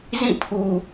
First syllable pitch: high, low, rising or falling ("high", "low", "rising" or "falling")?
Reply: falling